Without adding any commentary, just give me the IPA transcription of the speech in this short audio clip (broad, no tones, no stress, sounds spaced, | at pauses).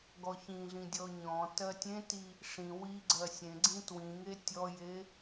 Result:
ɡ ɔ ç ĩ ɮ ĩ dʲ ɔ ɲ ɔ̃ t ɜ tʲ ẽ t i | ʂ ĩ w i ɡ͡ǀ ɜ sʲ ẽ ɡ͡ǀ ĩ t w ĩ ŋ e tʲ ɔ j e